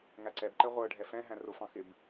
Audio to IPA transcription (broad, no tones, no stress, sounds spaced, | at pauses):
ŋ æ ǀ ɛ b ǃ ɛ ʁʷ ə˞ ɖʱ ɛ f ɛ̃ ɦ æ̃ r ʊ f ɑ̃ x ɪ b